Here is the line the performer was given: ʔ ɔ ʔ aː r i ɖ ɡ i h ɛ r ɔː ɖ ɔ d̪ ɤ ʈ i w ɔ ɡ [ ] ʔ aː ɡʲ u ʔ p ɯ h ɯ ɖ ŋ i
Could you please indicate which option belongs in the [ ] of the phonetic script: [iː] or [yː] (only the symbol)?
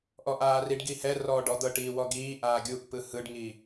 iː